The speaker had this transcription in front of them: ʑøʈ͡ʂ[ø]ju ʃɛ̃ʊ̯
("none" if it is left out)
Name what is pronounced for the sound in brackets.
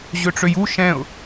ø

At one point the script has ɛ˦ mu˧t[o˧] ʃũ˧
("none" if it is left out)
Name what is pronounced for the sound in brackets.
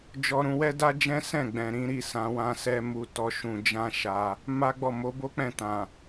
ɔ˧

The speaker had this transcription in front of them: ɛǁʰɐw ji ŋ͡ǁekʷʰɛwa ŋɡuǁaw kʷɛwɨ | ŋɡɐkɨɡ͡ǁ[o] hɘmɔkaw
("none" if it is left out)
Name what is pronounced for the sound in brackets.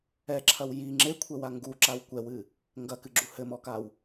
u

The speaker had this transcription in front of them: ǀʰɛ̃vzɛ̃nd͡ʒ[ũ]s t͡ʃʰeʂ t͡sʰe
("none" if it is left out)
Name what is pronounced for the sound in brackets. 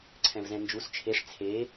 u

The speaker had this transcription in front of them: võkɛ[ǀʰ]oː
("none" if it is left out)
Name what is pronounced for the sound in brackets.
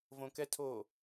tʰ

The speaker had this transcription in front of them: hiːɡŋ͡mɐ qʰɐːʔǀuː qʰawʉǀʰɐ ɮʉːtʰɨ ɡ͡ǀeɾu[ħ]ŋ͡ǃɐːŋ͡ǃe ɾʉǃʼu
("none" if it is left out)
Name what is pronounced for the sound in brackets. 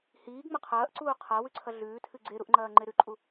ʔ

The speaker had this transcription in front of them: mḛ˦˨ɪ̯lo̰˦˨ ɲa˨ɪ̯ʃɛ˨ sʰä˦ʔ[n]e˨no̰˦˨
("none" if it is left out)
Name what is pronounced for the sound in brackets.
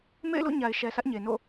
ɲ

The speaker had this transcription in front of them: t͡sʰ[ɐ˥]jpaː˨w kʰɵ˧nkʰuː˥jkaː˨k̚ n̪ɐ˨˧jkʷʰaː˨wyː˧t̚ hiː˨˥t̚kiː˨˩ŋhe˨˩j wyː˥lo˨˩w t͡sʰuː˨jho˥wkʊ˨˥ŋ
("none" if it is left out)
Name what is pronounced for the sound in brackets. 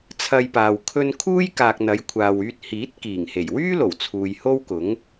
ɐ˧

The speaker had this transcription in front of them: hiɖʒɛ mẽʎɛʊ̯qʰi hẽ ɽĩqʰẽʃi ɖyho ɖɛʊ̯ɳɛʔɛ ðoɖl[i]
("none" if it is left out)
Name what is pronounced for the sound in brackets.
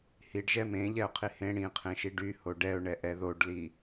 i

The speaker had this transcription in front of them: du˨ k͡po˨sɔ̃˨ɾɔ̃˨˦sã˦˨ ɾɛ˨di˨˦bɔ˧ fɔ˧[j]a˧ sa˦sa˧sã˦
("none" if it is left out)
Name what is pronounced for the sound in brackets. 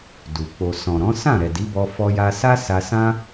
j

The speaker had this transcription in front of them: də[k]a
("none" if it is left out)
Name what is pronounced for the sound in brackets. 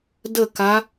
k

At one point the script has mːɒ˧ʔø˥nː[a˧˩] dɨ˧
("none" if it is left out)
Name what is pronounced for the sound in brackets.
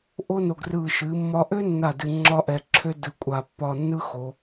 a˧˩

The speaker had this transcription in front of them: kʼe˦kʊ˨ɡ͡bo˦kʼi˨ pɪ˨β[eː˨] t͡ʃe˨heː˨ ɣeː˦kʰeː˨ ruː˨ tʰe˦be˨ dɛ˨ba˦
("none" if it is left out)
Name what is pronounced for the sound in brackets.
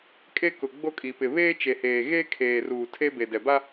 eː˦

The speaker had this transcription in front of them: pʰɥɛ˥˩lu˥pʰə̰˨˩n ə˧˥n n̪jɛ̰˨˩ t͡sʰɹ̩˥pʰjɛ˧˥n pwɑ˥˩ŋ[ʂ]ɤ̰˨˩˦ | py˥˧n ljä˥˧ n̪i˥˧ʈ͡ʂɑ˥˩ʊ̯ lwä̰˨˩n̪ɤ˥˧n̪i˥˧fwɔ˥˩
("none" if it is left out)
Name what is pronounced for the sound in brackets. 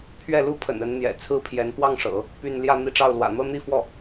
ʂ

